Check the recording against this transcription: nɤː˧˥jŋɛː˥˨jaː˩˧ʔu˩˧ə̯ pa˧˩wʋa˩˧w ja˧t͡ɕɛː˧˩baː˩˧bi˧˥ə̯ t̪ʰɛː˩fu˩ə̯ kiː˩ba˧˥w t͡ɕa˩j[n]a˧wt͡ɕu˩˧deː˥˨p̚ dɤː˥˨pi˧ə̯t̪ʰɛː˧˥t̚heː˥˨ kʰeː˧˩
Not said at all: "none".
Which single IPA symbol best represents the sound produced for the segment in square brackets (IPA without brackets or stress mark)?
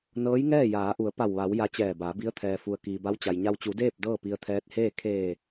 ɲ